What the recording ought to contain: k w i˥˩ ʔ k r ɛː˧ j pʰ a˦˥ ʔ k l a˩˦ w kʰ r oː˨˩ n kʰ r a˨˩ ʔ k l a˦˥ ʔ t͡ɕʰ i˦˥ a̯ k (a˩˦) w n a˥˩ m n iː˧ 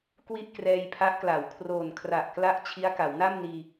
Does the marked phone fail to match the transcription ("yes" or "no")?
no